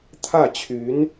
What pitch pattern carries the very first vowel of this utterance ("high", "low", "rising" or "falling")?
falling